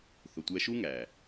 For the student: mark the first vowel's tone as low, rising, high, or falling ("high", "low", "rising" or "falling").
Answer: low